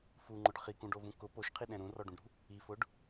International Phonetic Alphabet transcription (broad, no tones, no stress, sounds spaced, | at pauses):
f u ŋ͡ǃ ʊ ɖ χ i k ũ ɖ o v ũ k ʊ p o ʃ qʰ i ɗ ɛ̃ ɾ ũ r ɔ ɖ ũ ɖ ɾ ṳ | i f ʊ ɖ